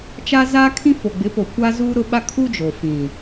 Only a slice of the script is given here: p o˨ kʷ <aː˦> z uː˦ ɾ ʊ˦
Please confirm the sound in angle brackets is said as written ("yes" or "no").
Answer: no